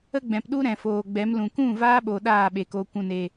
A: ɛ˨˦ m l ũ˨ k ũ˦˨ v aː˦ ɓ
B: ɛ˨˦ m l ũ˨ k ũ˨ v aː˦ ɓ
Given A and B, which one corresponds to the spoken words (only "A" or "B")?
A